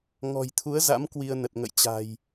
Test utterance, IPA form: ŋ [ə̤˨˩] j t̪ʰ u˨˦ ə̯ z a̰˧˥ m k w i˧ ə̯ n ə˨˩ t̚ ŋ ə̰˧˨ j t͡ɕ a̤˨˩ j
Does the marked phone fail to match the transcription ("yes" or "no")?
yes